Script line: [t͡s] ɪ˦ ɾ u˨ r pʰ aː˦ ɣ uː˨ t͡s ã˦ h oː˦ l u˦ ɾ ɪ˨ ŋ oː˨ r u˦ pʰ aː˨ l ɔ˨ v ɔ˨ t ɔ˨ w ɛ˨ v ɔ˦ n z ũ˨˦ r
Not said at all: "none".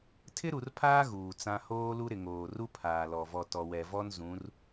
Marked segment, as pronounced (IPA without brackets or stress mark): tʰ